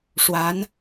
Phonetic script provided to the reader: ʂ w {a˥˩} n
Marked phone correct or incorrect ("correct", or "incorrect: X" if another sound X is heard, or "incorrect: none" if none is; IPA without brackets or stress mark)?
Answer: incorrect: a˧˥